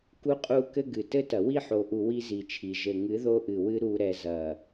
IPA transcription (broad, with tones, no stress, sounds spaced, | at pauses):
k u˦ qʼ u˦ k ɘ˦ ɡ ɨ˨ t ɘ˦ t ɐ˨ w i˦˨ ħ o˨ ʔ u˨ w i˦ z i˨ t͡ʃʰ i˨ ʒ ɘ˨ ŋ ɨ˨˦ ð o˦ ʔ ɨ˨ w ɨ˦ ɾ u˨ ɾ ɛ˨ z ɐ˨